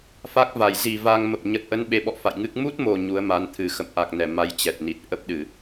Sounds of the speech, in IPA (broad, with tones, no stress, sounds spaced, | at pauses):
f a˦˥ k̚ v a˧˩ j z i˨˩ v a˧ ŋ m ə˨˩ p̚ ɲ ə˨˩ t̚ ʔ ə˨˦ n ɓ e˨˦ ɓ ɔ̰˧˨ f a̰˧˨ j ŋ ɨ˦˥ k̚ m u˦˥ t̚ m o˨˩ ɲ u˨˦ ə̯ m a˨˦ n t̪ʰ ɨ˨˩ x ə̰˧˨ m ʔ a˨˩ k̚ n ɛ˧˩ m a˧ j t͡ɕ ɛ˨˩ t̚ n i˨˩ t̚ ʔ ə˦˥ p̚ ɗ ɨ˧˩˨